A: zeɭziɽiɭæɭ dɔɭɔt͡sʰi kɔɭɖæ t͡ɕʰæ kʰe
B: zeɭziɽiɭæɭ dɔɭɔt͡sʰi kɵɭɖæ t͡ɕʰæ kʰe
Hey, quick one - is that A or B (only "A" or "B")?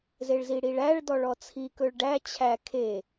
B